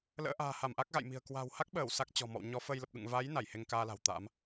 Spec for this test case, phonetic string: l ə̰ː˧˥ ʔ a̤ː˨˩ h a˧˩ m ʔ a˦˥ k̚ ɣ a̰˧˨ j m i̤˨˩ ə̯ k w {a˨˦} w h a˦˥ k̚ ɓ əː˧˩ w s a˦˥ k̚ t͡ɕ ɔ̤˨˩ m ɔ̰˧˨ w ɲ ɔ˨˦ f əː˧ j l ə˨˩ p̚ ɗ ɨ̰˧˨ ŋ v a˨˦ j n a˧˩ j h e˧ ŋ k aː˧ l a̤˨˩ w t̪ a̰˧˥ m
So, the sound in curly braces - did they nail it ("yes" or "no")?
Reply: no